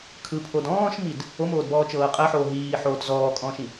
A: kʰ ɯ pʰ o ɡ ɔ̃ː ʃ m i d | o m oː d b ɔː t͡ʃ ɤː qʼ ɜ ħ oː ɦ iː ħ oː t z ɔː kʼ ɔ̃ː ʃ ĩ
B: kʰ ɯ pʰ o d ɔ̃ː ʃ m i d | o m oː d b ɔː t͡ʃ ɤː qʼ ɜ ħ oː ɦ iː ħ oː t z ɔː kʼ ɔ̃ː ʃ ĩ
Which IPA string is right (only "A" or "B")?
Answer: B